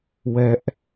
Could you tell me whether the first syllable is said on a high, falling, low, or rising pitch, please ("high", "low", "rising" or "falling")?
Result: low